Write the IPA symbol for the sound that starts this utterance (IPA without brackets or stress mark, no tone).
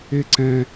e